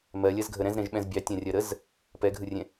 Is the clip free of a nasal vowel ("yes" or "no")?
no